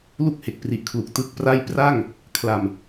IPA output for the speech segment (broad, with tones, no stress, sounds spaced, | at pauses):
l u˥˩ k̚ h e˨˩ k̚ p r i˨˩ ʔ kʰ l u˨˩ k̚ t ɯ˥˩ k̚ p r a˥˩ j p r a˥˩ ŋ | kʰ l a˨˩ m